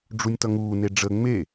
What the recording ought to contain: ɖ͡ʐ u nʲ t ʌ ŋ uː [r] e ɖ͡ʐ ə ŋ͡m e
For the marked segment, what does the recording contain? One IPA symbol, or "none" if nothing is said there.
n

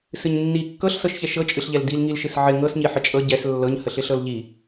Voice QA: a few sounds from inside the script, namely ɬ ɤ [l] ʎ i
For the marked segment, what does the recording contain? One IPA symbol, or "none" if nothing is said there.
l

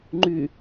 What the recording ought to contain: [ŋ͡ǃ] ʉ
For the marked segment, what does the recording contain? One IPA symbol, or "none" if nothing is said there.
ŋ͡ǃ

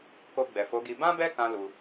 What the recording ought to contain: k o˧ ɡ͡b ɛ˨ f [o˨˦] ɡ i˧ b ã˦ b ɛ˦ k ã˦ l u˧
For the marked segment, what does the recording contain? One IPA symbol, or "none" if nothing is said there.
o˨˦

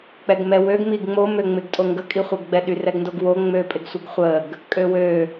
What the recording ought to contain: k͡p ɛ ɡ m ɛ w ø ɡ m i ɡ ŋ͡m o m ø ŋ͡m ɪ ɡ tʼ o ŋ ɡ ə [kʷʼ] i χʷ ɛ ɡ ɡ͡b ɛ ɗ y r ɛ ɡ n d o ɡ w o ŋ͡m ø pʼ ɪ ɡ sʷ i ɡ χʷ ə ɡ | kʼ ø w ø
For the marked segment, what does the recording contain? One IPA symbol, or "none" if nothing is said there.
kʼ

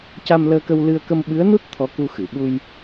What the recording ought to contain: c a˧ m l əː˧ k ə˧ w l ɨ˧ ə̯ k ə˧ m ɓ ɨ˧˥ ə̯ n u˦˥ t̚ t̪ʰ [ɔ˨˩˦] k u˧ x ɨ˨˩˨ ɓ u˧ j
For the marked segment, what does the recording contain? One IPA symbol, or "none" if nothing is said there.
ɔ˧˥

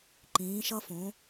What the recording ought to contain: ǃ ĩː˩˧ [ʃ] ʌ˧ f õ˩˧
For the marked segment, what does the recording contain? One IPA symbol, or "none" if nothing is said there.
ʃ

